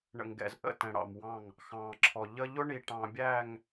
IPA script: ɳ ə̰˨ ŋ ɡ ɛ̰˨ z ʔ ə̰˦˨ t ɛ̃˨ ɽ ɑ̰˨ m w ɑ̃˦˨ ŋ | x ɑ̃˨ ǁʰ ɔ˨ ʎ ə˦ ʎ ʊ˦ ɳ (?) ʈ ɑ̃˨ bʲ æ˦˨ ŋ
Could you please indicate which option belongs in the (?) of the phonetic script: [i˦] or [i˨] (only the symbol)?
i˨